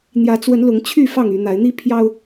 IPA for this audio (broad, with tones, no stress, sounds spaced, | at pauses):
n̪ j ä˨˦ t͡s w ə˨˦ n l ʊ˨˦ ŋ t͡ɕʰ y˥˨ f ɑ˥˨ ŋ y˨˦ n̪ a˨˦ ɪ̯ n̪ i˦ pʰ j ɑ˦ ʊ̯